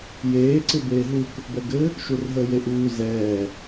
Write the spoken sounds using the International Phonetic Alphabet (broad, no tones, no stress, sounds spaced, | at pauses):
j eː ǀ ɪ b eː ɦ u k | b ɛ ɡ ɘ | ʃ u r ɦ əː j e ʔ uː z ɛː